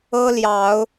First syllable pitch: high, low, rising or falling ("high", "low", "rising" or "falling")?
high